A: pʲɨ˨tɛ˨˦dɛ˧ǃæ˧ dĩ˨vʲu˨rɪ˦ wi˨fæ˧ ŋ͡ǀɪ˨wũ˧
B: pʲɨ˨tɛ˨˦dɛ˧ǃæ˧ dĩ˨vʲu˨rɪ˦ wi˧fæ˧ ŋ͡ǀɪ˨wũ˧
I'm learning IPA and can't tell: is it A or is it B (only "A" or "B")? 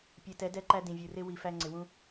A